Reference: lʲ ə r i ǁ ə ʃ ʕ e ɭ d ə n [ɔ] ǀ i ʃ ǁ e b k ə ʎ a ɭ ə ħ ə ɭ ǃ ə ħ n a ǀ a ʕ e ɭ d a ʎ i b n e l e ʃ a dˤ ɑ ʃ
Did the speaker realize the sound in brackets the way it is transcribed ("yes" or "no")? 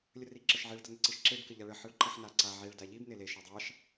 no